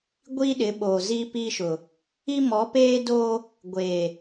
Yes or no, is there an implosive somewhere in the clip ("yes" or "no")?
yes